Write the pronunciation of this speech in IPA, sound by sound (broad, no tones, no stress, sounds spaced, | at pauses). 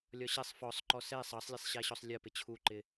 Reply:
lʲ ɒ ɕ ɛ sˤ f ɔ sˤ ǃ ɔ s ɛ sˤ ɑ sˤ lʲ ɛ sˤ ɕ æ ɕ ɔ sˤ lʲ ɜ p ɪ t͡ɕʰ u ǃ ɪ